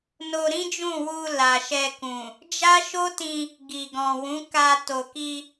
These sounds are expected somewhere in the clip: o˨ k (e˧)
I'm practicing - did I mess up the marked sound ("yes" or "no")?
yes